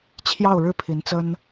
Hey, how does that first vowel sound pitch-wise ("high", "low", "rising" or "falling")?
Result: falling